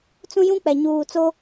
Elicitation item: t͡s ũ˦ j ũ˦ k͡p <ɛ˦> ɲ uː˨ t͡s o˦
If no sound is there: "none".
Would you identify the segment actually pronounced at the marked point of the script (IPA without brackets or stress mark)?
ɛ˨